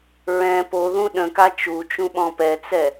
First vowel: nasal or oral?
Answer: nasal